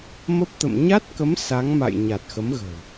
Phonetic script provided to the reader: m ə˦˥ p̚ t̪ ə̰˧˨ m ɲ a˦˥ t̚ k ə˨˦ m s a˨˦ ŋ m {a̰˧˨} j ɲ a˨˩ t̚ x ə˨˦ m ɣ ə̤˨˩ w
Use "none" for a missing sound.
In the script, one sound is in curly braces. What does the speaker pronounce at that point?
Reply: a̰˧˨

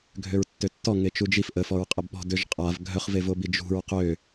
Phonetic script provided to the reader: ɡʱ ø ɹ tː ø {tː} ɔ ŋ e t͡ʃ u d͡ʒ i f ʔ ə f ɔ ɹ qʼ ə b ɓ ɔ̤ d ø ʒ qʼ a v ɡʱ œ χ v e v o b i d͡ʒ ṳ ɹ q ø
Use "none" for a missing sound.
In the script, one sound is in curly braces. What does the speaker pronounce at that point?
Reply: tː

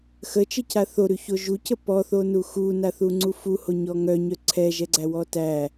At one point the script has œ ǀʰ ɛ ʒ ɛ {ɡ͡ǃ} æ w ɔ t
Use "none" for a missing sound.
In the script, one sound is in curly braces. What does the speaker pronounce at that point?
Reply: ɡ͡ǀ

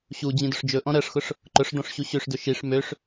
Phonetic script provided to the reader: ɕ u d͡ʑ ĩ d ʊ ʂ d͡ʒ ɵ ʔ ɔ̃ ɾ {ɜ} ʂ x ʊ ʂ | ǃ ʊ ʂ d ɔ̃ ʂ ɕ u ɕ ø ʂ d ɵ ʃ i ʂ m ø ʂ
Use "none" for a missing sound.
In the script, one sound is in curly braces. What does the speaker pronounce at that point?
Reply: ɜ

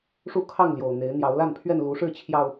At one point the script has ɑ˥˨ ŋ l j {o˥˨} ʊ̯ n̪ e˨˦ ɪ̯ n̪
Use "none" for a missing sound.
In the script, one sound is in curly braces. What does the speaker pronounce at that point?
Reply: o˨˩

